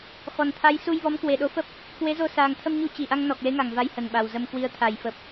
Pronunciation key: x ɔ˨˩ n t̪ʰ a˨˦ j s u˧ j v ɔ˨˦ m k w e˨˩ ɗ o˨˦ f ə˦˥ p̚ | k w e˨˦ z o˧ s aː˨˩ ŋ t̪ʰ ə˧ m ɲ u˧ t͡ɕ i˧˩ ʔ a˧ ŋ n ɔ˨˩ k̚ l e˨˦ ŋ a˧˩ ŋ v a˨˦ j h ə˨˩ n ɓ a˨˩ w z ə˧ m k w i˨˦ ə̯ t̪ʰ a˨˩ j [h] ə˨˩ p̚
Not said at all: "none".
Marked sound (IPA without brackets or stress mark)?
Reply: f